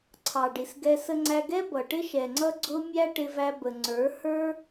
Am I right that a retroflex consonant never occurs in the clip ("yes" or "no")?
no